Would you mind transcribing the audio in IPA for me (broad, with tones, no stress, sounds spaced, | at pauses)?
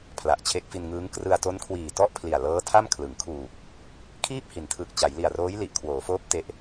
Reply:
pʰ l a˨˩ ʔ t͡ɕʰ e˦˥ k̚ f i˧ n ŋ ɯː˦˥ ŋ k r ɯ˧ a̯ t o˦˥ n kʰ w iː˨˩ t ɔ˥˩ ʔ pʰ l i˨˩ a̯ l ɤː˦˥ tʰ a˥˩ m kʰ l ɯ˩˦ ŋ kʰ uː˨˩ k̚ | kʰ iː˥˩ p̚ h i˩˦ n tʰ ɯ˨˩ k̚ t͡ɕ a˩˦ j l i˨˩ a̯ r oː˦˥ j l i˨˩ ʔ kʰ w oː˩˦ f oː˦˥ p̚ t e˦˥ ʔ